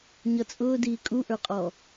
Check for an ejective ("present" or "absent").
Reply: present